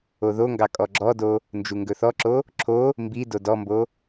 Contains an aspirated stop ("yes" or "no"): yes